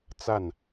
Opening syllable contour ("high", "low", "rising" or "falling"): falling